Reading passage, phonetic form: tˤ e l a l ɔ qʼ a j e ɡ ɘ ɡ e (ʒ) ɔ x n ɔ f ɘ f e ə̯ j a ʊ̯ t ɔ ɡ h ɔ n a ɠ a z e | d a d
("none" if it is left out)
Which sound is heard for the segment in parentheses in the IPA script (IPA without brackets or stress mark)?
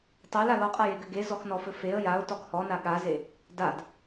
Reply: z